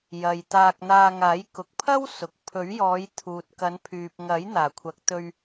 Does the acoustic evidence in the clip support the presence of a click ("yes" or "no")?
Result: no